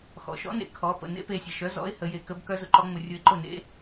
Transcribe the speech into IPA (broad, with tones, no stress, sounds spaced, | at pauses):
x ɔ̰˩˧ ʃ ɔ̰˨˥ n ḛ˩ kʰ ɔ˨˥ p ə̰˧ n ḛ˨˥ p e˩˧ sʲ ə˩ ʃ œ˨˥ z ɔ̰˨˥ ɪ̯ h ə˨˥ j e˧ k ə˦˥ b k œ˦˥ z ʊ˧ ǃ ɔ˦˥ ŋ͡m ʊ˧ rʲ ʊ˧ ɪ̯ ǃ ʊ˥˩ n ḛ˦˥